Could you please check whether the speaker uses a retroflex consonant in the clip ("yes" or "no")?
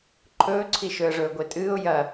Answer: yes